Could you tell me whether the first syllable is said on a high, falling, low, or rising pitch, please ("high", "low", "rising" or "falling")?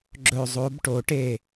falling